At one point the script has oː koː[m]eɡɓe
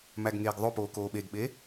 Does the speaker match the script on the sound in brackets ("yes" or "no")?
no